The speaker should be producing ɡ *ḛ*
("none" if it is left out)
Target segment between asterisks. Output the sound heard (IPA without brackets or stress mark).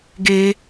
e